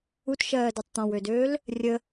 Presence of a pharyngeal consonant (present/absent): absent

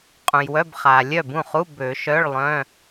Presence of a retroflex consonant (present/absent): present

